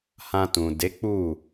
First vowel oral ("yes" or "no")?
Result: no